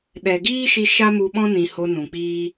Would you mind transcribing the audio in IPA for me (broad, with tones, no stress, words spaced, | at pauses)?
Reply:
ɗɛ˨ɡiː˦ʃi˧ ʃa˦mu˧ɓɔ̃˦ nĩ˨ ho˧ nũ˨k͡piː˦